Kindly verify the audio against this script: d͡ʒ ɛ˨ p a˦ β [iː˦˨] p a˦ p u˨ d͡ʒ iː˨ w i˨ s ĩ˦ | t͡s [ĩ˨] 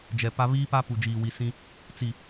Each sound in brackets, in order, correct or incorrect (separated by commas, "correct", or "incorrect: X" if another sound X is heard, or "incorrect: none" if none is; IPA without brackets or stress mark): incorrect: iː˦, incorrect: i˨